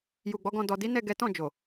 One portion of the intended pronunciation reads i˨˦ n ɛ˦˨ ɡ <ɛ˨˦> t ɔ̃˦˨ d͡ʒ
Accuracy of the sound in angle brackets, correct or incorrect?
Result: correct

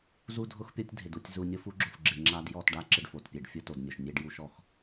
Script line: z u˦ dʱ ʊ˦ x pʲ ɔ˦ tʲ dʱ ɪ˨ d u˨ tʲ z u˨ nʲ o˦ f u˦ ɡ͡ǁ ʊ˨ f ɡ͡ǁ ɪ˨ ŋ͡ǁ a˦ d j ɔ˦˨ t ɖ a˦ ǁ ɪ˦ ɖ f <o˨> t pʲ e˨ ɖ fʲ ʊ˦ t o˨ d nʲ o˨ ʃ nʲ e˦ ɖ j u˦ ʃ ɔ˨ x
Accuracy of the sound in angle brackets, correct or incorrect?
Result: correct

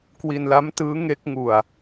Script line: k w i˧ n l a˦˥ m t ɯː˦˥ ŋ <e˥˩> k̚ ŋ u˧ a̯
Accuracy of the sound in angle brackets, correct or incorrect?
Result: incorrect: e˦˥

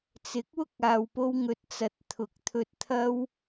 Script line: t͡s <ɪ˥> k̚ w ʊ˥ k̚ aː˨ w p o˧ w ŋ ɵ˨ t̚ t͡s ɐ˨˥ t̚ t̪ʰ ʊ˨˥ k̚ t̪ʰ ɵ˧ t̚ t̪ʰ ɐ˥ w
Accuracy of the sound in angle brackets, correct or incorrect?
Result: incorrect: ɪ˨˥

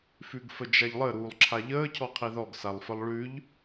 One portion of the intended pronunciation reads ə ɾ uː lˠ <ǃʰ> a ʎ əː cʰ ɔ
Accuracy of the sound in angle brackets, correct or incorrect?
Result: incorrect: ǁʰ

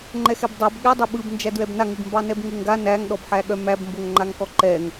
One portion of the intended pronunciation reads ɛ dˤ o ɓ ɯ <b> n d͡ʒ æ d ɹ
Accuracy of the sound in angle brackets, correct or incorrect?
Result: correct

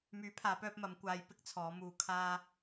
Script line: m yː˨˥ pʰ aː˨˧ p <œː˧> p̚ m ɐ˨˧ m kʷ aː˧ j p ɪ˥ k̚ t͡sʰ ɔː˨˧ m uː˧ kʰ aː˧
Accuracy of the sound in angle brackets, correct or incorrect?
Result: correct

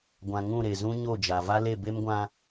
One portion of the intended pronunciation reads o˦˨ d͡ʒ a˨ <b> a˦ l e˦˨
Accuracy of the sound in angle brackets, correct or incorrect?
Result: incorrect: v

